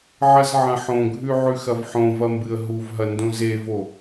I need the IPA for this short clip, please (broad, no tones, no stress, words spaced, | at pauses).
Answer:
ʕɐzʕɐ̃ħõɡʱʉ ʕʉxɐvħõvɐ mbɨə̯ɦuvɦɐ ndõzevo